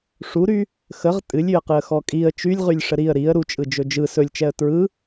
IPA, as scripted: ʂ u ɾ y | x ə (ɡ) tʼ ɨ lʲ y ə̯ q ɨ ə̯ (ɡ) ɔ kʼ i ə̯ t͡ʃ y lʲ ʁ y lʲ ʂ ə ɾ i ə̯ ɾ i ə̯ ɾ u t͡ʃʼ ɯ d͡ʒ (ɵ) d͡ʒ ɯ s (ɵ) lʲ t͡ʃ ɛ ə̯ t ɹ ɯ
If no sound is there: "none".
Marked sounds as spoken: ʁ, x, ɵ, ɵ

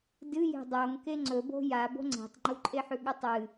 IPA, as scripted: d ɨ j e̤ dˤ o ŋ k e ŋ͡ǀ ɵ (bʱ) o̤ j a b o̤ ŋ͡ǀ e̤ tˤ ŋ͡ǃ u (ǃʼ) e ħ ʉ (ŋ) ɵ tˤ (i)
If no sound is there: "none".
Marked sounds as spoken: b, ǃʼ, ɠ, ɨ

